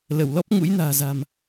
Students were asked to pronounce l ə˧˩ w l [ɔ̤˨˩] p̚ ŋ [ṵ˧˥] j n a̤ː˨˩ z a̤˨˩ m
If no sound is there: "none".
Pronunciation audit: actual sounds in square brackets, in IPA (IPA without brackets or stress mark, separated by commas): ɔ˦˥, ṵ˧˥